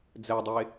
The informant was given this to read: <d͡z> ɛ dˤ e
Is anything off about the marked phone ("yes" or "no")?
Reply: no